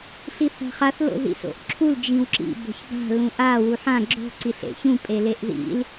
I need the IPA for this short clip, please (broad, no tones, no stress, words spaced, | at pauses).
ɬiθa̤χaθ lo̰ðḭso̰ʔǁʰul d͡ʒĩwǁḭ bo̤çba̤ lũʔa wuħã ɡ͡ǁo̤ ǀiɬḛçũ pʼeleʔðḭl